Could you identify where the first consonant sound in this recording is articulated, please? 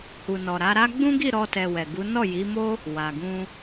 glottal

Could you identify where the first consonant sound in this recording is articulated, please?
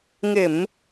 velar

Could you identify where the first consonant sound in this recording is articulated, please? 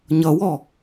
palatal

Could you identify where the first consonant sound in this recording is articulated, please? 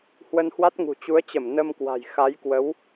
glottal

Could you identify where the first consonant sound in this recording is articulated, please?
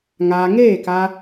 velar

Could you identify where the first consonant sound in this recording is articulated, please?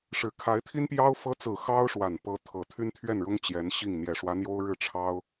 retroflex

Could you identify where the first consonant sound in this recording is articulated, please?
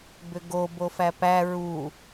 labial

